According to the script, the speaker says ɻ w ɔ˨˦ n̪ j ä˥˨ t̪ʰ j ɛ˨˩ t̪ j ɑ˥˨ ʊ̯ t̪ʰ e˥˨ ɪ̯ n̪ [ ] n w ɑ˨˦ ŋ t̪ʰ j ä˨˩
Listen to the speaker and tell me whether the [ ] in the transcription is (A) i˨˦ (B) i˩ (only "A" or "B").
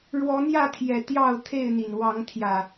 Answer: B